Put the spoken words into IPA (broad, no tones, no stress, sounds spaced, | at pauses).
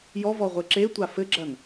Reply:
j ɔ v ɔ ʁʷ ɘ ǁ e tʷ a f ɘ ɡ͡ǁ ɐ n